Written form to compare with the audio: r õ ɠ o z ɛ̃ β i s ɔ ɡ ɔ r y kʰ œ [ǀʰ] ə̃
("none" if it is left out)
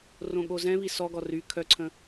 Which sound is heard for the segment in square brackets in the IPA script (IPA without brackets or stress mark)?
ǀʰ